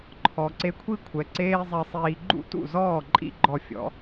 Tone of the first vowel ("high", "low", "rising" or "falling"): low